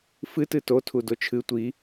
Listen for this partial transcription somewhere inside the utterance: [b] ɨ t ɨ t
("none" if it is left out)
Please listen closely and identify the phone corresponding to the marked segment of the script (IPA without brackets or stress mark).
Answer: f